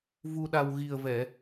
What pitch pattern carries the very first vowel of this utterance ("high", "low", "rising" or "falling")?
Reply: low